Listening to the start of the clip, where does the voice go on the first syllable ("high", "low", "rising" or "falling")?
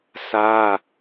high